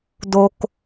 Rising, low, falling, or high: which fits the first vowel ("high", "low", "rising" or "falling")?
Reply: low